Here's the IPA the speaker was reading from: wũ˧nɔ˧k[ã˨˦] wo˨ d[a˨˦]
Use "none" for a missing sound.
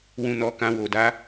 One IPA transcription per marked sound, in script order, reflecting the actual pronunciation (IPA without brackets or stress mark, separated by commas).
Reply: ã˧, a˨˦